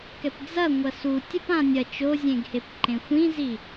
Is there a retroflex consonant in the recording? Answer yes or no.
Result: no